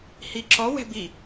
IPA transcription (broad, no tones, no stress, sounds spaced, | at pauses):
h i ǁ ɔ w ɛ̤ b i